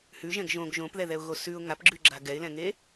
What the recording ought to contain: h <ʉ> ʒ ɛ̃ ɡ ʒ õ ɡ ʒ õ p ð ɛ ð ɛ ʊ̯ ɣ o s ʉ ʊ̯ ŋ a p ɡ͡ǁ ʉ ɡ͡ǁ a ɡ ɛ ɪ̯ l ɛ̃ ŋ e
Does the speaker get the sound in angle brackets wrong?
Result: no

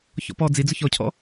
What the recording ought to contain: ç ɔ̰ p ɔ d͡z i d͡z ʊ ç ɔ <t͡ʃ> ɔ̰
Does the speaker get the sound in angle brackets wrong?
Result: yes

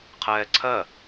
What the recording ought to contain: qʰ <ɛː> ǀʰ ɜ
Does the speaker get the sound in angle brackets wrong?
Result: no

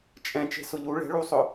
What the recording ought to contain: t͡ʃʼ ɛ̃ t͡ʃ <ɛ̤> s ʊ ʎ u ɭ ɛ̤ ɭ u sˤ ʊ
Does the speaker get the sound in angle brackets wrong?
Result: yes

